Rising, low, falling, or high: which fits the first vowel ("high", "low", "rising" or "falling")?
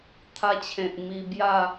high